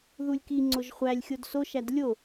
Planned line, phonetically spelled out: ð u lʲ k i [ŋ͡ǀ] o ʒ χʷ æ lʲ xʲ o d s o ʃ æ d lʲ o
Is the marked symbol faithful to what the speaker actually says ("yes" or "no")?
yes